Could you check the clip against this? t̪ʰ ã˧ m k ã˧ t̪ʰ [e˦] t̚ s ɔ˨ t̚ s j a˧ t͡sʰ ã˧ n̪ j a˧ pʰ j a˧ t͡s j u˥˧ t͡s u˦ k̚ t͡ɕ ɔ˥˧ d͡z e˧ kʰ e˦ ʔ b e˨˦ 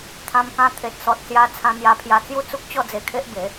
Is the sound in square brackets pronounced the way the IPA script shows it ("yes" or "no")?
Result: no